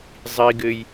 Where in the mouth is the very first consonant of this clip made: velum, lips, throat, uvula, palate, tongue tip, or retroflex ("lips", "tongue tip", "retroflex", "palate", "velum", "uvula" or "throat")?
tongue tip